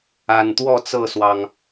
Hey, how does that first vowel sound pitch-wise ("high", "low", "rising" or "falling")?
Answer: low